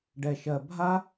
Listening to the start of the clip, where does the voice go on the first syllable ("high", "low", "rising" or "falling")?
low